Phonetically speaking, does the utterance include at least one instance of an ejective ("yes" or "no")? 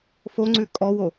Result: yes